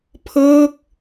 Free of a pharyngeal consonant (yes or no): yes